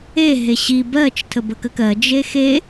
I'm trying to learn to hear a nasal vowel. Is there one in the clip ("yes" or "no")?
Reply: no